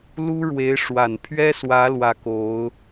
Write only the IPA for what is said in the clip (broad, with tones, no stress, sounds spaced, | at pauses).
l u˥ ɻ w e˧˥ ɪ̯ ʂ w a˨˩ n pʰ ɥ ɛ˥ s w ä˧˥ l w ä˥˩ k o˧˥ ʊ̯